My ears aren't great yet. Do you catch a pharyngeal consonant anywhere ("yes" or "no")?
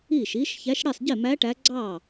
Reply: no